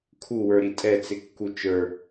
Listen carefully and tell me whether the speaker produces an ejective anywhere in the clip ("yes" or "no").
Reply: yes